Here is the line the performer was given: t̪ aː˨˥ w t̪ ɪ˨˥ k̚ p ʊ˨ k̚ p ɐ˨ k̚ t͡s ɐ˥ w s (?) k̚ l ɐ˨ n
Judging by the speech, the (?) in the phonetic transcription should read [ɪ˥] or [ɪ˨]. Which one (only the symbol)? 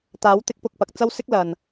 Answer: ɪ˥